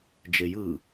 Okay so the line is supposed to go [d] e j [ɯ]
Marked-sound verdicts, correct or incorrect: incorrect: d͡ʒ, correct

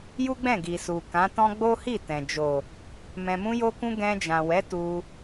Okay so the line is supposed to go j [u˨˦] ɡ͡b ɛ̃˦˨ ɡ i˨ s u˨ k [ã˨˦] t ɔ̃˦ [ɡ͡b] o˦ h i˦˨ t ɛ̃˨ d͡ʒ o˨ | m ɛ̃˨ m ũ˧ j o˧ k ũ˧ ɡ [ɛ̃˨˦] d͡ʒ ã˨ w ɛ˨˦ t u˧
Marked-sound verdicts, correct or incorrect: incorrect: u˦, correct, correct, incorrect: ɛ̃˧

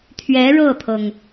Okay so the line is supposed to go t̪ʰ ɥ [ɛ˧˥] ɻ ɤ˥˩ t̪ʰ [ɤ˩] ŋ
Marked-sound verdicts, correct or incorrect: correct, correct

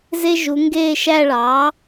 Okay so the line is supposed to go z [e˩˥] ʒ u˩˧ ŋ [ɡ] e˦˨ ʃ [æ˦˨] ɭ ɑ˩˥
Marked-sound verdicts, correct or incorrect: incorrect: e˦, correct, correct

